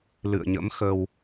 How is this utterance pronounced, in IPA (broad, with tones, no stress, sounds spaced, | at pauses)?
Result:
l ɨ̰˧˨ ə̯ ɲ ə̰˧˥ m x ə˧ w